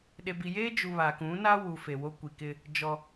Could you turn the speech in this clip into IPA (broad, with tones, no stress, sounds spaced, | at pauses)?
ɗ e˨ b i˨ j eː˦ d͡ʒ u˨ β a˨ k ũ˨˦ n a˦ w u˨ f e˨ w o˦ kʷ i˨ k ɪ˦ | d͡ʒ ɔ˦